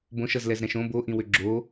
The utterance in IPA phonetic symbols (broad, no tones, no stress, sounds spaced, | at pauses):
b õ ʃ ʌ z l ɛ z ɾ ɛ̃ ʃ õ b o ʔ ĩ w ʏ ɡ͡ǁ o